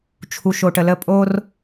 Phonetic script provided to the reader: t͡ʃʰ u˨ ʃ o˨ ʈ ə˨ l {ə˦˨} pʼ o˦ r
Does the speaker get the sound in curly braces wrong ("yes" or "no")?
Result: no